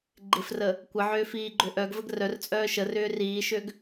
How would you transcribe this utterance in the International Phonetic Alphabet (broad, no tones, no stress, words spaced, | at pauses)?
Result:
ɡ͡ǃɪfrə | kʷəʕʏː fiːɡ͡ǃøʔœɡvəɡ rœrt͡sʼœː ʃərʏː riːʃøɡ